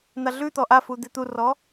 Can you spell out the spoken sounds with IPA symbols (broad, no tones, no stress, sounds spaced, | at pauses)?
n̪ a ɮ ʉ t̪ ɔ ʔ a f u d̪ e t̪ u r ɔ